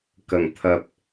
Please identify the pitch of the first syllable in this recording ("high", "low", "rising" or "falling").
low